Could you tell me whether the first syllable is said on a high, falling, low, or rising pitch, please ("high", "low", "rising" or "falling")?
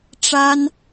high